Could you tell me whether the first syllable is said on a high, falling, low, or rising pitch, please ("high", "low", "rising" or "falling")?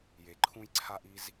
low